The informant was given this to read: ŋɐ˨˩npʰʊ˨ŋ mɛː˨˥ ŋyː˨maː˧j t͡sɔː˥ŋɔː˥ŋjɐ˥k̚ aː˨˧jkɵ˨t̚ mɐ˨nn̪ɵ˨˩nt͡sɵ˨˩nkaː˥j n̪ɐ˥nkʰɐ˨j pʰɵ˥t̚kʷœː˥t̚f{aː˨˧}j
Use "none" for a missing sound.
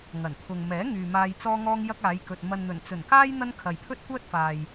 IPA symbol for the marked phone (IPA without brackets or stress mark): aː˨